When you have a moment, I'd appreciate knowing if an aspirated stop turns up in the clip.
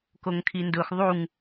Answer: yes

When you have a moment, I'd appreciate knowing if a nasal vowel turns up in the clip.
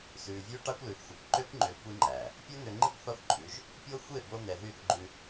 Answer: no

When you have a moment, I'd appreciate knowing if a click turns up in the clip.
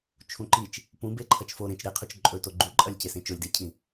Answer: yes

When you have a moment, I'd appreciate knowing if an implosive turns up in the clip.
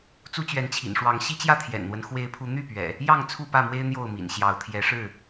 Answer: no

